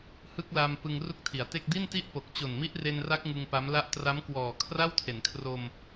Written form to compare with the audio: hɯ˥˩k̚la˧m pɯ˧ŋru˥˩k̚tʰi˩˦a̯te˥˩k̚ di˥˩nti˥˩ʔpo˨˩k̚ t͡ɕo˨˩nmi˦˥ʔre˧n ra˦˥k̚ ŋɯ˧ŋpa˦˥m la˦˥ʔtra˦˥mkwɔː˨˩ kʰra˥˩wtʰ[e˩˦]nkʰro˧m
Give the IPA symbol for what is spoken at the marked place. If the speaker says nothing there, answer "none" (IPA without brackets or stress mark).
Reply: e˩˦